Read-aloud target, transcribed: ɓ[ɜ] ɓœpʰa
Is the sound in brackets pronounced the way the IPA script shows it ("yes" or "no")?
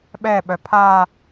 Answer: no